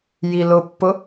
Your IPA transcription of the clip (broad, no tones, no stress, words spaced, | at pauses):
jilʊpːʊ